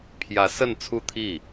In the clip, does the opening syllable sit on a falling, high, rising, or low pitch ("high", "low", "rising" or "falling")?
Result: rising